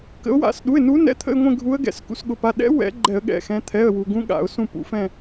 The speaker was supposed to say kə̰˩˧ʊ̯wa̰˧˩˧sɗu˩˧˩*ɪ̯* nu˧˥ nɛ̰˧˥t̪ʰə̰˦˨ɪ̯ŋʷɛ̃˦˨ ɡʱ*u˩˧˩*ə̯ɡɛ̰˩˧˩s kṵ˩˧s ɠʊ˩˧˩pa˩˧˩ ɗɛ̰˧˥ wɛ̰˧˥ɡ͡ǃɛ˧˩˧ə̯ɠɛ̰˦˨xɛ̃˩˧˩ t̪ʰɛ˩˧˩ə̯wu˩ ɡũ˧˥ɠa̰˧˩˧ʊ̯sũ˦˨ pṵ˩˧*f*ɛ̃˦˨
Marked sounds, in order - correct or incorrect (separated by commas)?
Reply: correct, incorrect, correct